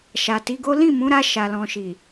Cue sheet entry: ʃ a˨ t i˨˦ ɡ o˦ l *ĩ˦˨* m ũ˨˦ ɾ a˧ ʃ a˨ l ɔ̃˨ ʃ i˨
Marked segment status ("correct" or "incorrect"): correct